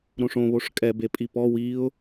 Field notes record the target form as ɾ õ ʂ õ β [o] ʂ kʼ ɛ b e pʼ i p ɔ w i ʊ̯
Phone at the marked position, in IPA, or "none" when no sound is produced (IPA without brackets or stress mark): o